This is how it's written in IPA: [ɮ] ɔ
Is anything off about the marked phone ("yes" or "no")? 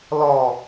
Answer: yes